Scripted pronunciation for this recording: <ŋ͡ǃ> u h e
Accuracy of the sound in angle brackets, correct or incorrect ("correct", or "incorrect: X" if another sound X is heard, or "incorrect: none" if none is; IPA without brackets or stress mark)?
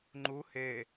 correct